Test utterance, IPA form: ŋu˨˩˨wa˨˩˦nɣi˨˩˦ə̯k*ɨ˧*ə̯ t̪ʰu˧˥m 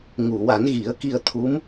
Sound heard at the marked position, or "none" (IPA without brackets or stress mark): i˧